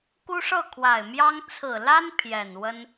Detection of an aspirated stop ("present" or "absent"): present